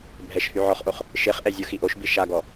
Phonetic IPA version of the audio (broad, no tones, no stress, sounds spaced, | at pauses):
bʱ ɛ ʃ h y ʕ ɔ χ ʔ o χ | ʃ e χ ʔ ɛ zʲ o x i ʔ o ʃ b i ʃ a ɡ ɔ